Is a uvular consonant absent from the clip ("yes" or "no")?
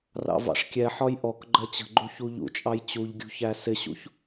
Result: yes